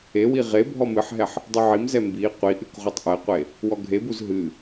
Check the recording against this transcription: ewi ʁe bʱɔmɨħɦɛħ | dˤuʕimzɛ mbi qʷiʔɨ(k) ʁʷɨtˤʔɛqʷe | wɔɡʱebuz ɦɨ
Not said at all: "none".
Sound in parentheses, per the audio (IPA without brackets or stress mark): k